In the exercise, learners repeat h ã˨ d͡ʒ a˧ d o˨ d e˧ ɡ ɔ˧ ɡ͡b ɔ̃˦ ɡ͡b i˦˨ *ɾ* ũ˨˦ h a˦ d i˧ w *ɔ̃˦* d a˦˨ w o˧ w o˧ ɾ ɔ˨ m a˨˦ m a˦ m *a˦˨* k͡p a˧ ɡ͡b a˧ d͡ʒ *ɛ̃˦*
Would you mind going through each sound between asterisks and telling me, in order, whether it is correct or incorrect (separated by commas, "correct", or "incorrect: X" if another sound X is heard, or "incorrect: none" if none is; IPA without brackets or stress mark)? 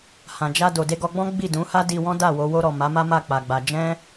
incorrect: d, correct, correct, correct